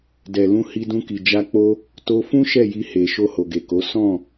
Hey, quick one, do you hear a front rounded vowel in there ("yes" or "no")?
no